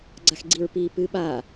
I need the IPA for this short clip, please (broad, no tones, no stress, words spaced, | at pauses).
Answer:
ɡ͡ǀaxɡ͡ǀiɹ pi pɨ ɓa